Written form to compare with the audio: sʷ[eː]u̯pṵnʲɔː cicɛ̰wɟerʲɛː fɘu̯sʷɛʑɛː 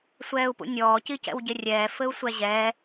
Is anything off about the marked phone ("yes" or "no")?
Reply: yes